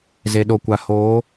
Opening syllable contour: low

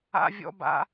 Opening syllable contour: high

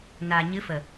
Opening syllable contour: low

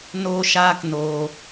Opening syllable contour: high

